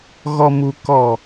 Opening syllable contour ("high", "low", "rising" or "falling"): low